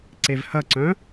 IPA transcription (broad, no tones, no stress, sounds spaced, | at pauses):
ǀ e v h ɐ ǀ œ̃